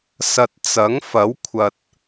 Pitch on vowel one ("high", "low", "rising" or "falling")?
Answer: low